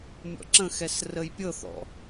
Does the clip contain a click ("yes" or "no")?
yes